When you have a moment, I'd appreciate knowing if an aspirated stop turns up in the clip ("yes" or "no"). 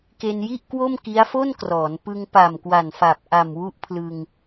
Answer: yes